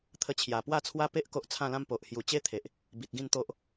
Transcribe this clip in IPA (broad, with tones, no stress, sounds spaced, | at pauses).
t̪ʰ ə˧ t͡ɕʰ j a˨˩ p w a˥˧ t͡sʰ w a˦ p e˦ ʔ k o˦ ʔ t͡sʰ ã˥˧ l ã˦ m p o˨ ʔ h j u˨˩ t͡ɕ e˦ t̪ʰ e˨ ʔ | b i˨ t̚ ɡ ĩ˥˧ n t̪ o˦ ʔ